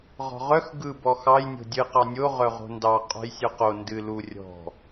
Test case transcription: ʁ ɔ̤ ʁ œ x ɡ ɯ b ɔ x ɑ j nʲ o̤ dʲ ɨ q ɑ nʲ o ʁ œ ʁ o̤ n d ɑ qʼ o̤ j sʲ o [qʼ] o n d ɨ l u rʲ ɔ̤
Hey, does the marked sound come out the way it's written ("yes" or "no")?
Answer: no